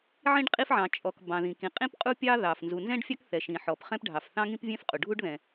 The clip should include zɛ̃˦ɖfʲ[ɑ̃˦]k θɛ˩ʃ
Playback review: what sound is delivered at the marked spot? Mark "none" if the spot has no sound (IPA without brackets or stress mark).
ɑ˦